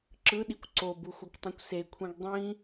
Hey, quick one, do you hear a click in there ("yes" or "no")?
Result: yes